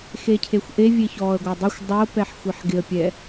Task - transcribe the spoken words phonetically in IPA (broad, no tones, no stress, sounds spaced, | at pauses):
x e cʰ e xʷ ʔ e vʲ e ç ɔː ə̯ ɡʷ a dˤ i xʷ dˤ o p ɛ ħ xʷ i ħ ɡ ɪ ə̯ pʲ ɛ